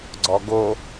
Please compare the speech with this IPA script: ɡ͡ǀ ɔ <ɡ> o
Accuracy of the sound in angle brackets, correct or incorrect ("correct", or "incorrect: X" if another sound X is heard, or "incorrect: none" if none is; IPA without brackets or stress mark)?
correct